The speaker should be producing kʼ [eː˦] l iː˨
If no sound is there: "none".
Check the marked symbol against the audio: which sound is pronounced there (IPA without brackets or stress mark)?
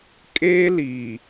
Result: eː˦